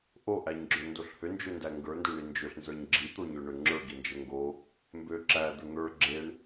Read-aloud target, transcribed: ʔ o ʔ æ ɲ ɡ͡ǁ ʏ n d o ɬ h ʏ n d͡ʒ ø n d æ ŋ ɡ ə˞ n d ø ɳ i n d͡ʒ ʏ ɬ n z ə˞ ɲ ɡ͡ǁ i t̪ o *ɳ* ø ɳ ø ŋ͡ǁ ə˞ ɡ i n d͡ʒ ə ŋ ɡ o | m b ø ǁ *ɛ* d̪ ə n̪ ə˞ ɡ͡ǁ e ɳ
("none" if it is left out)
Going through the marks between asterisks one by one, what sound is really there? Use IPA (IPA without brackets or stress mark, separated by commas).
ɲ, æ